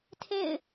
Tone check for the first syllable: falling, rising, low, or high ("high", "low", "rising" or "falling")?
falling